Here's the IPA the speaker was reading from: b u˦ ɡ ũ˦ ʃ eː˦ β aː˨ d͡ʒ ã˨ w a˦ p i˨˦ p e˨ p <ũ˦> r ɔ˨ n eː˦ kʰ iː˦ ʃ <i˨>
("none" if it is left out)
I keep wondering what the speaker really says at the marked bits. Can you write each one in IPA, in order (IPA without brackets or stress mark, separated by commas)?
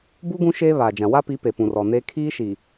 ũ˨, i˨